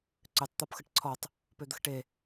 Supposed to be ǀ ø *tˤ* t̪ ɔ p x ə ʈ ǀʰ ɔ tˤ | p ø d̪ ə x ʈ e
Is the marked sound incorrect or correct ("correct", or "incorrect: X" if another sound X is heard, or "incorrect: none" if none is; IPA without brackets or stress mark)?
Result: correct